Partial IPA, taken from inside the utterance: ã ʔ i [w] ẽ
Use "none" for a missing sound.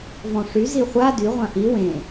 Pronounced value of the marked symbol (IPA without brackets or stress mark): w